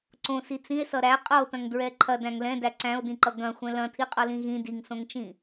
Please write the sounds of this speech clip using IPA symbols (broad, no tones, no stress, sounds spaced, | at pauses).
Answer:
ǀ õ s i t͡s ĩ e̯ s ʌ ɾ æ qʼ ʌ o̯ t ɐ̃ ŋ d ɹ ɛ ǃʰ ɐ d æ̃ ŋ l ɛ̃ d æ ǀ æ̃ o̯ d ĩ ǃ ʌ ɡ ɐ̃ xʷ ɛ̃ l ɐ̃ tʰ i qʼ ʌ l ĩ ɣ ĩ d i ŋ s õ ŋ t͡ʃ ĩ